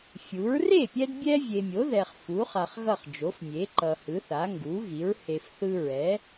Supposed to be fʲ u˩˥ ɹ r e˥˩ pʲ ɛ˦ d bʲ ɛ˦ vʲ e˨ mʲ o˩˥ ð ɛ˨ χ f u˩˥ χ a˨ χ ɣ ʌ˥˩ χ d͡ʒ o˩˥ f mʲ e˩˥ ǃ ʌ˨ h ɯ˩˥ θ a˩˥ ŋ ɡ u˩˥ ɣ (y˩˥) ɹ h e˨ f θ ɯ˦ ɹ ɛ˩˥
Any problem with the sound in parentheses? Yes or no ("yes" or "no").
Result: yes